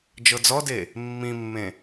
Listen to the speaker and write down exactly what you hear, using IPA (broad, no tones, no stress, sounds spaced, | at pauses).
d͡ʒ ɤ d͡z ɔ d e | mː ĩ mː ẽ